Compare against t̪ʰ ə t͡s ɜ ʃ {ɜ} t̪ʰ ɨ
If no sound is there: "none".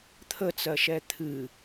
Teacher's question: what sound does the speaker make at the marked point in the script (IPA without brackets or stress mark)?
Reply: ɛ